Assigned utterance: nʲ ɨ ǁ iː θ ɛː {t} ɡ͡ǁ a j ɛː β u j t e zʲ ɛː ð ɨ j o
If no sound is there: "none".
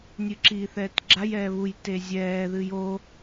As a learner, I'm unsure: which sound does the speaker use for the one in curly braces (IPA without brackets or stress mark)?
t